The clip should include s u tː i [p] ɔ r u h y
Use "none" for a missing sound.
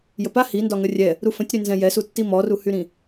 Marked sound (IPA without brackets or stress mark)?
m